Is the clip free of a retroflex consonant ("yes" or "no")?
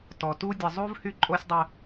yes